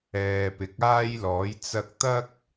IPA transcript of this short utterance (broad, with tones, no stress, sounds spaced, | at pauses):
ɛː˨ p ɪ˨˥ k̚ aː˥ j l ɔː˨˥ j t͡s ɐ˧ k̚ t̪ ɐ˥ k̚